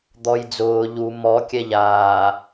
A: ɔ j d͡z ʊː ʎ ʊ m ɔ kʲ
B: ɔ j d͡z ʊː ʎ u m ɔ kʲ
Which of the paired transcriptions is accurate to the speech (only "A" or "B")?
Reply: B